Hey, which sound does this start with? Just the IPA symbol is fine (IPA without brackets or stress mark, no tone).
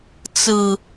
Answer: t͡s